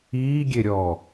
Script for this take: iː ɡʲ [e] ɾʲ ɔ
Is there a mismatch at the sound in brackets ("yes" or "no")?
no